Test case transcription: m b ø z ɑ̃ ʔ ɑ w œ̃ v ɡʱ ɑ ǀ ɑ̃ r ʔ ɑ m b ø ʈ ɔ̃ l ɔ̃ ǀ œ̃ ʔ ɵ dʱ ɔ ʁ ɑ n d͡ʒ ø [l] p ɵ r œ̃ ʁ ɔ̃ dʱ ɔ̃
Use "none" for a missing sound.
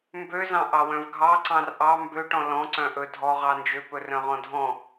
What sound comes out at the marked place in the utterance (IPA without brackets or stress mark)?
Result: none